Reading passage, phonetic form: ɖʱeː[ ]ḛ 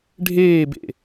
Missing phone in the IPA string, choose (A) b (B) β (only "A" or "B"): A